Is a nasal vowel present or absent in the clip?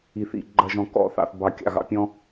present